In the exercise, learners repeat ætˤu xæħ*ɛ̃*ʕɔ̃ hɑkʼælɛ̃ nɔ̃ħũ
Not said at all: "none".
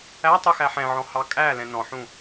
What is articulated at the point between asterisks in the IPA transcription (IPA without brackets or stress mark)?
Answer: ɛ̃